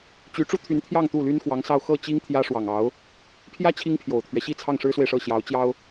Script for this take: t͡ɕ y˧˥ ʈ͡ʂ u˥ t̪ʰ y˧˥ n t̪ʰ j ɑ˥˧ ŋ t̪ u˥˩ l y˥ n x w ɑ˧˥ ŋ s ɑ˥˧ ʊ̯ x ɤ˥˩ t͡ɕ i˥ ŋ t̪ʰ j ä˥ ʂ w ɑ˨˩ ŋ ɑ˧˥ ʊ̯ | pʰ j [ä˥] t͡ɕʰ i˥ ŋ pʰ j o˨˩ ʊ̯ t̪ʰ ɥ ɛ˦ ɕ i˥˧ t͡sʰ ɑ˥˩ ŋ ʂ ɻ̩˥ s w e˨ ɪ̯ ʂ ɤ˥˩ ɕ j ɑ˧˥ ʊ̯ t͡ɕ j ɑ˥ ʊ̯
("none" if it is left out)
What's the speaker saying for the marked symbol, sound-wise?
ä˥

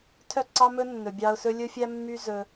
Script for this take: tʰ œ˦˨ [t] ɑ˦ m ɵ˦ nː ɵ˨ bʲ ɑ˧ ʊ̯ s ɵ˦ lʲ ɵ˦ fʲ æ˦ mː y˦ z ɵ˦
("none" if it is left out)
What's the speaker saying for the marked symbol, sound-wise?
ǀ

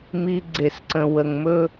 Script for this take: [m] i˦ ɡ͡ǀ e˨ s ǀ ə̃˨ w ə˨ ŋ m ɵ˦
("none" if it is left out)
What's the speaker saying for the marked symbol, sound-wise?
m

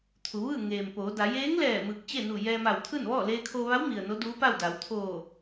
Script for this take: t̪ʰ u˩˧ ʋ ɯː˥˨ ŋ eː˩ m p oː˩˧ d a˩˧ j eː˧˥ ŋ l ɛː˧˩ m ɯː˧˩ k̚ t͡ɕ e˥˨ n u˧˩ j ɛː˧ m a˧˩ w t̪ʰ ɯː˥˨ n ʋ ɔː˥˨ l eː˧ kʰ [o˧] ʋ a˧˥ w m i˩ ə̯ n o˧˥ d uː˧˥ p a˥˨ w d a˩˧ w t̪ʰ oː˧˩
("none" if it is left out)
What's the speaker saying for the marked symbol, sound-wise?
o˧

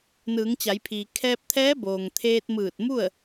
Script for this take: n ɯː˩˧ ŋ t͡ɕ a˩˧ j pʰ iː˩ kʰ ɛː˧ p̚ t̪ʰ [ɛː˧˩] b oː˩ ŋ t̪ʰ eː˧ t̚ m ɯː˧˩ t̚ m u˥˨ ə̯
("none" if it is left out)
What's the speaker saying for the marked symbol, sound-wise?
ɛː˧˥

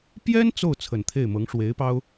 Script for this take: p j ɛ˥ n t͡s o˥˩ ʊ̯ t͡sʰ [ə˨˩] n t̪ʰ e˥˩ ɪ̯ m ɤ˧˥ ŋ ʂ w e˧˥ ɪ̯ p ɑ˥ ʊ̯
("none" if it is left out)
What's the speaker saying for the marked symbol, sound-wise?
ə˨˩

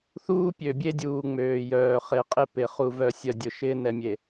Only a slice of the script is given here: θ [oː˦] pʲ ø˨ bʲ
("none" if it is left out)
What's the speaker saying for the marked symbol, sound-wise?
uː˦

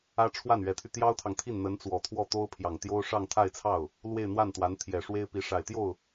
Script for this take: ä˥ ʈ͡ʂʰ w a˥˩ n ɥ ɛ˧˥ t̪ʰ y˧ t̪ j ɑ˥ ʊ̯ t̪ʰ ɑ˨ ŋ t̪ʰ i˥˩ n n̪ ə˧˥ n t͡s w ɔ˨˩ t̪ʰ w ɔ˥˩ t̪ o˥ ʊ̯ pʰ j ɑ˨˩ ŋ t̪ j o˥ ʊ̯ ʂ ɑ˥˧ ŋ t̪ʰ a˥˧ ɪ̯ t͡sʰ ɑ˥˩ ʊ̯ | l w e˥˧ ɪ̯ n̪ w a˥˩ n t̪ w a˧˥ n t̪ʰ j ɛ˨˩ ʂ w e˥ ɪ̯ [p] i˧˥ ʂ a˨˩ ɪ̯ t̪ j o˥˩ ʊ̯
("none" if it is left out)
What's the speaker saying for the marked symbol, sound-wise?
p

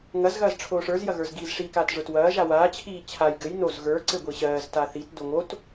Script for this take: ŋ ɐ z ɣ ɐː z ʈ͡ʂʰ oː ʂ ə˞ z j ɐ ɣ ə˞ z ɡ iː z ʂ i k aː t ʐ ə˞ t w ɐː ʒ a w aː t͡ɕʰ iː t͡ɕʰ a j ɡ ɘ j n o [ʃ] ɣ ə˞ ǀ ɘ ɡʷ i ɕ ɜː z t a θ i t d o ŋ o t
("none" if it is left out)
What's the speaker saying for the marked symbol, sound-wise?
z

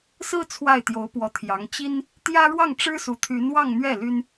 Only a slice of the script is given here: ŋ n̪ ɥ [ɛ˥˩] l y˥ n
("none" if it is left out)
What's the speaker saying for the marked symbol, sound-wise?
ɛ˥˩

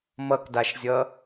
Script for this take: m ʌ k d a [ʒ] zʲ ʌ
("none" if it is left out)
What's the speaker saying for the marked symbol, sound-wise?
ʃ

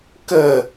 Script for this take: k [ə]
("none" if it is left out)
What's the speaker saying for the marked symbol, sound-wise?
ə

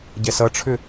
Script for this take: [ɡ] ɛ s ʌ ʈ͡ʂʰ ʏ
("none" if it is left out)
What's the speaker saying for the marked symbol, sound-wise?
ɟ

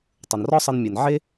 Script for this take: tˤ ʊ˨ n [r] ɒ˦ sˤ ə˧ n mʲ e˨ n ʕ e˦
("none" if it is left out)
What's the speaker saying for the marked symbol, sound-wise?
r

